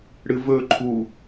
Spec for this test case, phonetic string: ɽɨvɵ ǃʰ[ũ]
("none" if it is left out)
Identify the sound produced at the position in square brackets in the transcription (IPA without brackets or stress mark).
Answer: u